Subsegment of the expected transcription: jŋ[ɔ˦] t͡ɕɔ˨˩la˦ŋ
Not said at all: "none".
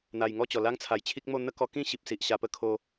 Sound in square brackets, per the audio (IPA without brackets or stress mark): ɔ˥˧